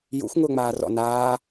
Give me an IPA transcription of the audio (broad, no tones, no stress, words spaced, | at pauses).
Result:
jṵxʷ ŋʊːŋ͡maːrɔ̰ naː